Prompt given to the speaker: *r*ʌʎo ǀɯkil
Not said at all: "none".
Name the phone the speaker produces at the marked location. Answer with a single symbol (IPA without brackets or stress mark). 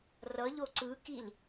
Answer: r